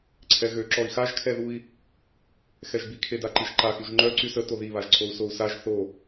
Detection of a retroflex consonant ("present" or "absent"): absent